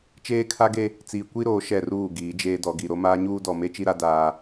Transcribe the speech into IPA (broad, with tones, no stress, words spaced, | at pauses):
t͡ʃeː˦kʰa˦ɡe˦ | t͡siː˨kʷi˦ɾoː˨ ʃɛ˦˨ruː˦˨ɡiː˨˦ d͡ʒeː˦dɔ˨ɡi˨ ɾo˦maː˦ ɲuː˦dɔ˨me˦ t͡ʃi˦ɾa˦daː˦